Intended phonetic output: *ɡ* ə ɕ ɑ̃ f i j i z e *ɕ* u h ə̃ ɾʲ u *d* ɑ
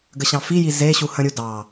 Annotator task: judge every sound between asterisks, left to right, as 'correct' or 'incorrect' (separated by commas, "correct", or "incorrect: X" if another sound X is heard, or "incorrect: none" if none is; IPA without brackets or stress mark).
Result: correct, correct, correct